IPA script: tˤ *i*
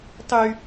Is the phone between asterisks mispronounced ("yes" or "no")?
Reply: yes